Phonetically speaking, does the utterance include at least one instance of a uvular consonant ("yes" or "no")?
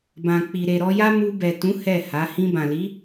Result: no